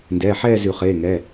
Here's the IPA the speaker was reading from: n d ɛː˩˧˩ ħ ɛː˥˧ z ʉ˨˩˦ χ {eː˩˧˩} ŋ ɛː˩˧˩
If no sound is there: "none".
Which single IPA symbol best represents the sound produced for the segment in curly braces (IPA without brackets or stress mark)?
eː˩˧˩